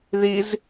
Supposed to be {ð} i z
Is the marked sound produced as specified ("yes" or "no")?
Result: yes